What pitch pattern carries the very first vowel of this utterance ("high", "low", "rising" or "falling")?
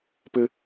high